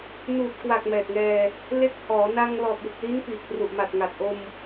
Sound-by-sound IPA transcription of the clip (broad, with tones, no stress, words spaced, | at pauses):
nuː˨˩t̚kwa˨˩k̚ mɛː˨˩t̚ŋɛː˧ | le˦˥k̚ hɔː˩˦na˧ŋ lɔː˨˩t̚ju˨˩k̚li˦˥n piː˨˩k̚pru˨˩ʔma˨˩t̚ŋa˨˩t̚ ʔo˧m